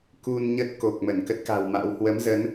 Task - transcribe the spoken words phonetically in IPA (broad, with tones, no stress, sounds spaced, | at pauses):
k u˧ n ɲ ə˦˥ t̚ k o˨˩ k̚ m ə˧˩ n k ə˦˥ t̚ k a̤˨˩ w m a̰˧˥ w h w ə˨˦ m z ə˨˦ n